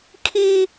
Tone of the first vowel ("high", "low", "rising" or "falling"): high